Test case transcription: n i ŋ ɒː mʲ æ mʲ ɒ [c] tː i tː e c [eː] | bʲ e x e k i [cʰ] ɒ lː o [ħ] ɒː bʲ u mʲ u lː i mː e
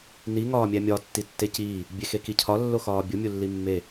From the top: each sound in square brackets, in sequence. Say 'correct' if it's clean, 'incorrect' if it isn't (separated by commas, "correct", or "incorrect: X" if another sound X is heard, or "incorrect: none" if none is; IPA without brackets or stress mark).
incorrect: none, incorrect: iː, correct, incorrect: x